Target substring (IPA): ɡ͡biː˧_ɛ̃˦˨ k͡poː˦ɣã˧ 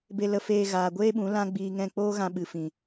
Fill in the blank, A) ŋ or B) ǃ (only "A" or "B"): A